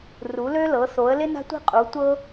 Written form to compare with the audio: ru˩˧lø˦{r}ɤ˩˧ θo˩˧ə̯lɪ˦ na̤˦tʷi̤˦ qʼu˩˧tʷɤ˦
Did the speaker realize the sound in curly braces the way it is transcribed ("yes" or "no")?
no